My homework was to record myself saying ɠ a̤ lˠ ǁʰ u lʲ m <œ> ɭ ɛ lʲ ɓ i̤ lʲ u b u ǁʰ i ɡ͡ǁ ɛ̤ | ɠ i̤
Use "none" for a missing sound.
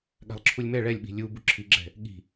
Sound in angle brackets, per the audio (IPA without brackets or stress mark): ɛ